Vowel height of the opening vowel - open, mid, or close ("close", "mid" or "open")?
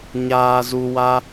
open